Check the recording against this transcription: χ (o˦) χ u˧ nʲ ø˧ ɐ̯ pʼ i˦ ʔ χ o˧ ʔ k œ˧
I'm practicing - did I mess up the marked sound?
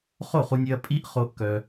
yes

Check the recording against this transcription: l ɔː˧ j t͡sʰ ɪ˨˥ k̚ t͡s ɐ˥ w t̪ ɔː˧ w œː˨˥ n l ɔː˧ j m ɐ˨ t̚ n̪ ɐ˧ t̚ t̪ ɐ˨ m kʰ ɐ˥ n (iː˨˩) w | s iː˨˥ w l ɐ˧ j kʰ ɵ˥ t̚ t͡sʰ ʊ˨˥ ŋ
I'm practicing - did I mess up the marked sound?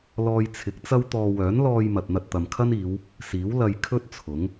yes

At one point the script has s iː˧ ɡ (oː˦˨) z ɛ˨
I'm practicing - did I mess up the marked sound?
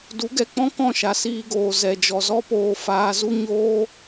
yes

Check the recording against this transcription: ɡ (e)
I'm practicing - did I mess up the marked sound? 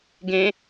yes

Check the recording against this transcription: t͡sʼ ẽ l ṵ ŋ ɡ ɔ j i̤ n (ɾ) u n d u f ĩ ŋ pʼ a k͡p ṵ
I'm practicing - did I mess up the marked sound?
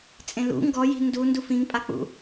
yes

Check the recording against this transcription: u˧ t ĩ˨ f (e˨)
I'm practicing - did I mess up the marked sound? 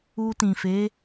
yes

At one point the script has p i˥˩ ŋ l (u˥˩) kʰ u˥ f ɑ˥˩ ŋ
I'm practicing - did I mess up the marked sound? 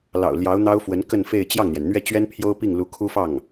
yes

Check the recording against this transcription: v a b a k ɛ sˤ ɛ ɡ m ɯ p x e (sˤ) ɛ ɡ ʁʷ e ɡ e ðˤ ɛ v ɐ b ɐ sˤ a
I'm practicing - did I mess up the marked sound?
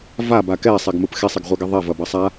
no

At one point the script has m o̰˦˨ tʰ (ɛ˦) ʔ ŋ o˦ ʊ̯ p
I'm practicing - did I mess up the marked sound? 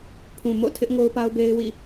yes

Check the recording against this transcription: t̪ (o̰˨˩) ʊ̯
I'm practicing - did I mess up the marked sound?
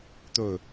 yes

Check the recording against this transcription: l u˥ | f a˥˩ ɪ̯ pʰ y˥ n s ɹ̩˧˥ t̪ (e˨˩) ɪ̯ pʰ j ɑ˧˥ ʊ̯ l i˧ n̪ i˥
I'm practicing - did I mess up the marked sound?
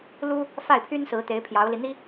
yes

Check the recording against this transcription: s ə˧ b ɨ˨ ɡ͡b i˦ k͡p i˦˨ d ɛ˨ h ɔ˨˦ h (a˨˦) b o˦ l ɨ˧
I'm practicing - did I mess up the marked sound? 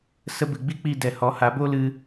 no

